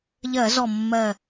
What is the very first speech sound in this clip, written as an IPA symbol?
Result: ʎ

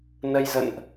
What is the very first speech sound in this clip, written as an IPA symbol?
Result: n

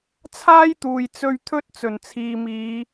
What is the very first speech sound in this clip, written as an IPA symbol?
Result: t͡sʰ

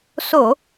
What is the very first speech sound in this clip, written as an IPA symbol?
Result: s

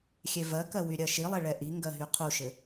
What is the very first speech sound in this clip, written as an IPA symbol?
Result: xʲ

